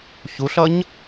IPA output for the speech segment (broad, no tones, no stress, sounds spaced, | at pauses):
ç u ɬ ʌ ɲ